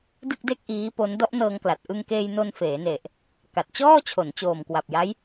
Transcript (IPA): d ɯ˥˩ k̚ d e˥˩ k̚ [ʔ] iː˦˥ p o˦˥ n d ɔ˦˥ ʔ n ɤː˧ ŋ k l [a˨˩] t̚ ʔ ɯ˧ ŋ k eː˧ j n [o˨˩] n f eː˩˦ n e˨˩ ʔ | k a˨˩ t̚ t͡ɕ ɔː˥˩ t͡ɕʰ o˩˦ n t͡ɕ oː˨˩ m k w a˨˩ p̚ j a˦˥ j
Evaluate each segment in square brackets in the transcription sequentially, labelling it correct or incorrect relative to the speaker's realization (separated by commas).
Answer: correct, correct, incorrect